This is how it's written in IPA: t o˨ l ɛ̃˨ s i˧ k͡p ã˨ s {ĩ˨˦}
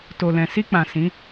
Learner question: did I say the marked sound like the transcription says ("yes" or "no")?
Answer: yes